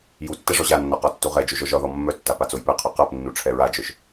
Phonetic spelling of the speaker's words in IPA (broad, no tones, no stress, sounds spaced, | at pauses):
j u tː ɛ ʐ ɔ ʑ a nː ɔ q ɒ tː u ʁ ɛ d͡ʒ o ʒ ɔ ʒ ɒ ð ɔ mː œ tː a p a t͡s o j p ɛ qʰ œ q a p nː u ʈ͡ʂʰ ɛ ɹ a d͡ʒ œ ʃ